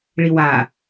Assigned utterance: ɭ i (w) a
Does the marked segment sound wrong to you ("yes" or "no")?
no